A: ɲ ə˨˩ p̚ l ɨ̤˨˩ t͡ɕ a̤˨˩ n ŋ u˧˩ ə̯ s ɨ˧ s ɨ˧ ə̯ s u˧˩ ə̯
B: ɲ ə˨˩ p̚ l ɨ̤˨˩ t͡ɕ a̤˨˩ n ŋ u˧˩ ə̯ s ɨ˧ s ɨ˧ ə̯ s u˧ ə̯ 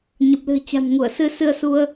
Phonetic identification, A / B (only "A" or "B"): B